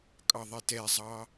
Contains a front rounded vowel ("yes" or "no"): no